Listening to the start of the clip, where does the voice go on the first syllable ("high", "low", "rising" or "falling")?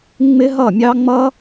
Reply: high